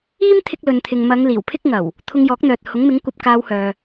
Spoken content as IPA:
iː˥ m t̪ʰ ɪ˧ k̚ l ɵ˨ n t̪ʰ ɪ˨ ŋ m ɐ˨˧ ŋ l iː˨˩ w pʰ ɪ˥ k̚ ŋ ɐ˨˩ w | t̪ʰ ʊ˧ ŋ j ɔː˨˥ k̚ n̪ œː˨ t̚ h ʊ˨˥ ŋ m ɪ˨˥ ŋ kʷ ɐ˧ p̚ k aː˧ w h œː˨

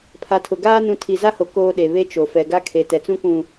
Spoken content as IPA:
pʰ a˨ tʰ ʊ˨ ɡ aː˦ n ũ˨ tʰ i˨ z a˦ h o˨ k oː˦ ɗ e˨ β e˦ t͡ʃ o˨ f ɛ˨ ɡ a˦ kʰ e˨ t ɛ˨ t͡s ũ˦ k ũ˨

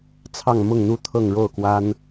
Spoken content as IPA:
t͡sʰ ɑ˥˧ ŋ m ʊ˥˧ ŋ n̪ u˥˧ t̪ʰ ɤ˥˧ ŋ ɻ o˥˩ ʊ̯ k w a˥ n

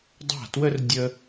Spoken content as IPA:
dˤ a̤˥˩ t w ə˥ r dʲ ə˥

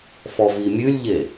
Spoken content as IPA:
f ɔ v i mʲ ʉ lʲ ʎ e

